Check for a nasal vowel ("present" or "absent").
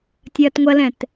present